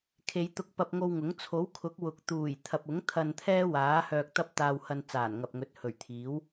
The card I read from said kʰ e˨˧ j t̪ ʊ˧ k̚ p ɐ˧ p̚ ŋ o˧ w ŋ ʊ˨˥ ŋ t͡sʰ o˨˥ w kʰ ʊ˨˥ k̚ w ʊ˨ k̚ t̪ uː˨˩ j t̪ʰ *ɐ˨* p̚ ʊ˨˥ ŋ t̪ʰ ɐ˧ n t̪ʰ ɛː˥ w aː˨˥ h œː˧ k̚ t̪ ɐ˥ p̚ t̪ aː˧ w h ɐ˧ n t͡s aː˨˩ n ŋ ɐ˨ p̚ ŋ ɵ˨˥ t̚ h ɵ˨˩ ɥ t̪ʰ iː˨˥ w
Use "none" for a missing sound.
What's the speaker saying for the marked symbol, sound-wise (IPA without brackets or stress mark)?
ɐ˨